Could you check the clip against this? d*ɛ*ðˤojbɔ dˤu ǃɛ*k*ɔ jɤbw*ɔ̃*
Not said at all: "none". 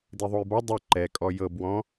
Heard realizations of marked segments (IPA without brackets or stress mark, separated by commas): e, kʼ, ɔ̃